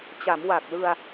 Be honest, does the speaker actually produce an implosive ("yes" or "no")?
no